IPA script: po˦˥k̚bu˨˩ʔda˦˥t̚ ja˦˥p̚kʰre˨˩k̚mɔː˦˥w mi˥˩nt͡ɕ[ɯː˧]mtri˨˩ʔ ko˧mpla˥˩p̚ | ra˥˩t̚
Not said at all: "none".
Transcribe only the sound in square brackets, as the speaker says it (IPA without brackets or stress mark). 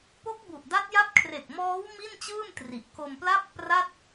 ɯː˥˩